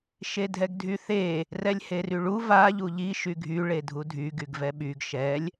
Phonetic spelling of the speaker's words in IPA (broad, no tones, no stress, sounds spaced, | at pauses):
ʃ e dʱ ɛ ɡ dʱ y θ e | r ɛ lʲ h e r y ɭ u v a ʎ u ʎ i ʃ y ɡʱ y ɭ e dʱ u dʱ y ɡ y ɡ v ɛ ɓ y ɡ ʃ ɛ lʲ